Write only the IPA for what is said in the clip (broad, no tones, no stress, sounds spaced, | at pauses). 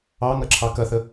ɑ ŋ ɐ ǁʰ ɑ k ɐ θ ə